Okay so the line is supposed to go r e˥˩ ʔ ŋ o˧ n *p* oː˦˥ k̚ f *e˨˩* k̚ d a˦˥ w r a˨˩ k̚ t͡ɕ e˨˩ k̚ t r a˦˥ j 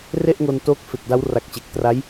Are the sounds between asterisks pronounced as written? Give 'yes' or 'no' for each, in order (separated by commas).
no, yes